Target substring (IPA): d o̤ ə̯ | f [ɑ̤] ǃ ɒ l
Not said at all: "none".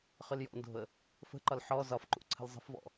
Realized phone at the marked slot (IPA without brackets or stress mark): ə̤